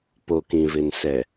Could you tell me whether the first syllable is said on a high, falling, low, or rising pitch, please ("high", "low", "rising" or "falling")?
low